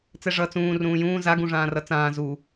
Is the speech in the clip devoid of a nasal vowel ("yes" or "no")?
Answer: no